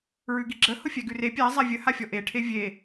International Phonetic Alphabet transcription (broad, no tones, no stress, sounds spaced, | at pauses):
ɹ ʉ ɡ i ɡ͡ǁ ə h ʊ fʲ æ ɡ ʉ r e pʲ æ zˤ a vʲ ə h a fʲ ɔ ʔ e ʈʰ e vʲ e